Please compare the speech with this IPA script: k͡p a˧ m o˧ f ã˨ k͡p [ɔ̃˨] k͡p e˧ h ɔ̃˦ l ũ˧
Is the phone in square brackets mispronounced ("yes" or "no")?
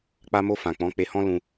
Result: yes